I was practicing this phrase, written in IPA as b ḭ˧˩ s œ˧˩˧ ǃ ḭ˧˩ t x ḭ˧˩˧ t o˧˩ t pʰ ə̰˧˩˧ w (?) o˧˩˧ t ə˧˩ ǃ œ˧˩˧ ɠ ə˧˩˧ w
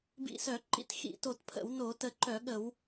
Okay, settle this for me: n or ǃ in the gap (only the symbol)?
n